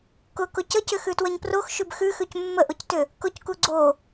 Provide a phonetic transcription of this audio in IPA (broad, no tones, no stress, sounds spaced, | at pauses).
k ʊ k ʊ c ə c ʏ x ʉ t w ə ɲ p r o x ʃ ʉ b x ʉ x ʉ c mː ə ʔ ʊ c t ʏ | k ʊ c k u ɡ͡ǀ o